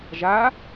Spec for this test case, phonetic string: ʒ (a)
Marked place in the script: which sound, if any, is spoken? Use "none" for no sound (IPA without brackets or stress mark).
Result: a